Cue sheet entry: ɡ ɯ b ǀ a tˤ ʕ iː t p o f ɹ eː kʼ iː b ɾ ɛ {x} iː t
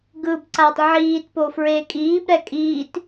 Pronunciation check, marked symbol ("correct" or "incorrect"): incorrect